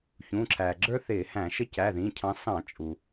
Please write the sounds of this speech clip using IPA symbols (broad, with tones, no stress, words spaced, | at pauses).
çũ˩˧˩ǁʰæ˩ɡ͡ǁə˞˦ θɪː˧˩˧hæ̃˧˩˧ʃə˦ cæ˩˧˩ðĩ˩˧˩cʰɑ̃˨˦ sɑ̃˧˩˧t͡ʃʼu˩